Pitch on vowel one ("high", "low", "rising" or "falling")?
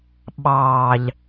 low